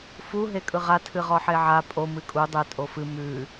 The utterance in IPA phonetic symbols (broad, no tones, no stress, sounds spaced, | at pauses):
f u ɦ e kʼ ɯ ʁ a tʰ ɨ ʁ ɔ ħ e ʕ a pʼ o m ɨ kʼ u dˤ ɛ tʼ o f ɨ m ʉ